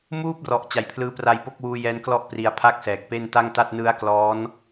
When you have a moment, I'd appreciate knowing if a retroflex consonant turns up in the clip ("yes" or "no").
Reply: no